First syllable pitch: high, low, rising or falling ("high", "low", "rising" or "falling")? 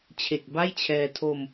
low